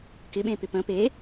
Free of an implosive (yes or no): no